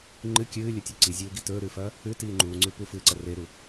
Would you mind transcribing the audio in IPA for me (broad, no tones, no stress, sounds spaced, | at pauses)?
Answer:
ŋ͡ǃ ɨ kʲ ɨː lʲ ɵ tʲ o ǀ i zʲ uː ɡ i t ɵː ɾ ʉː f ɐː | ʉ t iː ŋ͡ǃ uː ŋ͡ǀ ʉ p u f ɨː ǀ ɐ r e ɾ u